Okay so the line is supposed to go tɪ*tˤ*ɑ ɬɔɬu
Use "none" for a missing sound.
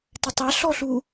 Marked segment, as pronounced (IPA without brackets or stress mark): tˤ